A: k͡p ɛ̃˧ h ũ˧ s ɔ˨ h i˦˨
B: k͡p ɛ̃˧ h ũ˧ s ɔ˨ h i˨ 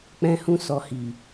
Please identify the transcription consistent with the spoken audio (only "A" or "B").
B